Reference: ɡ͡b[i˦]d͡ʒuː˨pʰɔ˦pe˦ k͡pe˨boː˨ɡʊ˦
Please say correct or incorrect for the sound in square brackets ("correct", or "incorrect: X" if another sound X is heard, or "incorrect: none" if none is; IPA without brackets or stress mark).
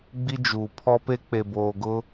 correct